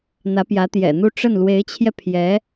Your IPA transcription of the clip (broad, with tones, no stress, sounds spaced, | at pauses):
n̪ ä˧˥ p j ä˧˥ t̪ j ɛ̰˨˩ n̪ u˥˧ ʈ͡ʂ ə˥˩ n l w e˧˥ ɪ̯ t͡ɕʰ j ɛ˧ pʰ j ɛ˧˥